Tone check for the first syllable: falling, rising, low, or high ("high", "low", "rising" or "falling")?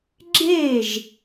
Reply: falling